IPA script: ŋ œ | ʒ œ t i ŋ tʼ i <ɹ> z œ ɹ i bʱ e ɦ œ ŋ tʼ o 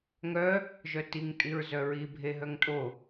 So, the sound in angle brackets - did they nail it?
yes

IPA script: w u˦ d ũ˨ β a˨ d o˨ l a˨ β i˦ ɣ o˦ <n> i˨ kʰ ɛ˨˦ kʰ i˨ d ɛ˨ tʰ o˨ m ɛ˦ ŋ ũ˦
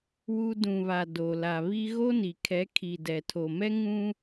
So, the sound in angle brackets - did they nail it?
yes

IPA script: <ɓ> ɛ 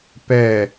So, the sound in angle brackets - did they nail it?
no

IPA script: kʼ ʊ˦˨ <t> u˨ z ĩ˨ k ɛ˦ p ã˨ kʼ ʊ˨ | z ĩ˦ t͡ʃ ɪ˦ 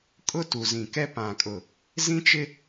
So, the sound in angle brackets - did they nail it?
yes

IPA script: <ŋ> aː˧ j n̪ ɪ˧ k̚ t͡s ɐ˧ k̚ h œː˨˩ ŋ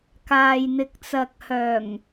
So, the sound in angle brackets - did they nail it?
no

